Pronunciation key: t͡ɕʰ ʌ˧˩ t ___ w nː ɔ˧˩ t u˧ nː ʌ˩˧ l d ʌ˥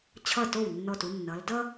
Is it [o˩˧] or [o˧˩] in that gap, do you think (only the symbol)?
o˧˩